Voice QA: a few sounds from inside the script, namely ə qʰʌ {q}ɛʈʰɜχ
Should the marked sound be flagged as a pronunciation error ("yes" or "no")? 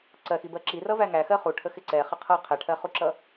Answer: yes